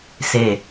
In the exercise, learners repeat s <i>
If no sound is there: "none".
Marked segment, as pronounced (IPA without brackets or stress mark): e